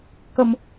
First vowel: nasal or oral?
oral